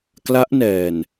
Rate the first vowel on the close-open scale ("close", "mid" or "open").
open